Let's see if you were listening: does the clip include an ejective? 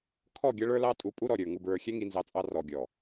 yes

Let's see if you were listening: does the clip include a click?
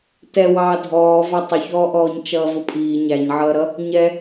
no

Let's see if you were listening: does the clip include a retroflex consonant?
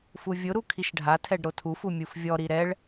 yes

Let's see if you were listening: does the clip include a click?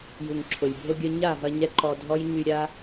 yes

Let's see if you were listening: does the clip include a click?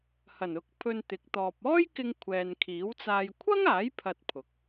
no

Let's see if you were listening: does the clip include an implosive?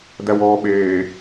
yes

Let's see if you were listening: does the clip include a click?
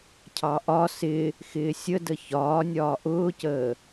no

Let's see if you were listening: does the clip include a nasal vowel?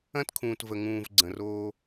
yes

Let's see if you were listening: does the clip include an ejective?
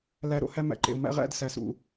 no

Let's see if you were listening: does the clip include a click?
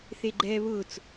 yes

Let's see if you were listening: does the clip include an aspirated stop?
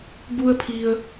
yes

